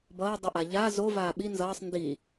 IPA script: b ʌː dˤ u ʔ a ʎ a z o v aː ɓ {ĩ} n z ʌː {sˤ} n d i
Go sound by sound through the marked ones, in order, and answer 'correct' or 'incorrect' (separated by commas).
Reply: incorrect, correct